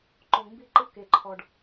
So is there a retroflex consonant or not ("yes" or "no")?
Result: yes